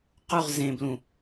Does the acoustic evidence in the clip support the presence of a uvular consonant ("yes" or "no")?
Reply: yes